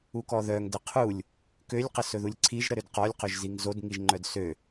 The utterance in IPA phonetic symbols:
u k ɔ ð œ ŋ d ə qʰ u lʲ | k ø lʲ q ə s ɵ ð u lʲ ǀʰ i ʒ ɾ ə ɾ ø d q ɔ lʲ q ɵ ʒ z i ŋ z o d ŋ i ʒ ŋ͡ǃ œ d s ø

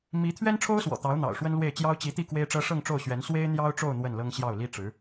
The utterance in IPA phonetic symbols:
m i˧˥ t̪ʰ ɥ ɛ˥ n ʈ͡ʂʰ o˥ ʊ̯ s w ɔ̰˨˩ t̪ ɑ˧˥ ʊ̯ n̪ ɑ̰˨˩ ʊ̯ ʂ w ə˥ n l w e˥˩ ɪ̯ t͡ɕ j ɑ˥ ʊ̯ t͡ɕ i˧˥ t̪ i˥˩ k w e˥ ɪ̯ ʈ͡ʂ ɤ˥ ʂ ɤ˥˧ ŋ ʈ͡ʂ o˥˩ ʊ̯ ɕ ɥ ɛ˧˥ n s w e˥ ɪ̯ n̪ j ɑ˥ ʊ̯ ʈ͡ʂ o˥˧ ʊ̯ n̪ w ə˥˩ n l ɤ˥ ŋ ɕ j ɑ˥˩ ʊ̯ l i˥ ʈ͡ʂ ɻ̩˧˥

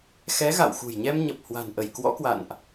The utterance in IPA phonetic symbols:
x ɛ˨˦ ɣ a̰˧˨ w x ṳ˨˩ j ɲ ɛ˧ m ɲ ə˨˩ p̚ h w a̤˨˩ n ʔ ə˧˩ j k w ɔ̰˧˥ k w a̰˧˨ n ʔ

